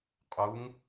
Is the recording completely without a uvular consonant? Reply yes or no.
no